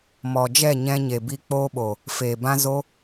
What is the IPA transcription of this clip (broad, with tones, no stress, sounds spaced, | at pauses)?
m ɔ˨ d͡ʒ ɛ˦˨ ɲ ɛ̃˧ ɲ e˨ b i˨ k͡p oː˧ ɓ o˨ | f eː˨ b ã˦ z o˦